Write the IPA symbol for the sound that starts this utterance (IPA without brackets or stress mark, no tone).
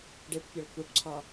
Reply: ɖ